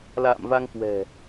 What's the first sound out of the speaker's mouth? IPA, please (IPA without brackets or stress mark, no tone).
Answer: l